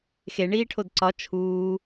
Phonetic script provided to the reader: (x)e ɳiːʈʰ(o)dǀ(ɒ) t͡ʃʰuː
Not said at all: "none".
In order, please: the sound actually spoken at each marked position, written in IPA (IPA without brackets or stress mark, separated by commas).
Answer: x, o, ɒ